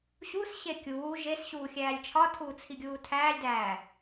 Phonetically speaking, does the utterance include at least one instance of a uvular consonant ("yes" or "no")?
no